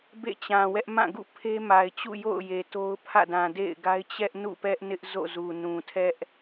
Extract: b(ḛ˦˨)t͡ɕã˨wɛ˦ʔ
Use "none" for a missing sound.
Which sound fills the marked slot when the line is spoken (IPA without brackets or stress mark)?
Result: ḛ˦˨